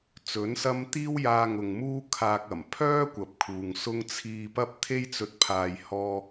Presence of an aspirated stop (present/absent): present